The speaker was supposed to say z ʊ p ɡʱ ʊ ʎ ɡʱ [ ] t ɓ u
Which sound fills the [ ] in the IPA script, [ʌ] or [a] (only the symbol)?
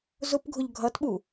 ʌ